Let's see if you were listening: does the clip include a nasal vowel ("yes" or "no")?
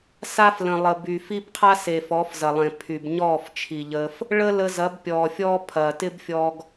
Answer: yes